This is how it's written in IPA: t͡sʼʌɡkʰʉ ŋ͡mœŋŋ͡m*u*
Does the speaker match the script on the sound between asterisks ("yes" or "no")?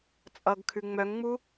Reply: yes